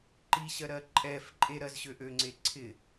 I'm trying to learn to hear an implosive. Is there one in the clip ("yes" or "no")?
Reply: no